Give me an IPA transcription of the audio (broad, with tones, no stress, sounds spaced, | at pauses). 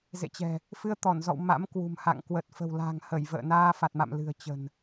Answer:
z ḛ˧˨ t͡ɕ ɛ̤˨˩ | f ɨ˧ ə̯ t̪ ɔ˧˩ n z ɔ̰˧˨ w m a̰˧˥ m k w ṳ˨˩ m h a̰˧˨ ŋ k w ə˨˩ t̚ f ə̤˨˩ w l a̤˨˩ ŋ h ə˧˩ j v ə̰ː˧˨ n aː˧ f a˨˩ t̚ m a̰˧˨ m l ɨ̤˨˩ ə̯ t͡ɕ ə̤˨˩ n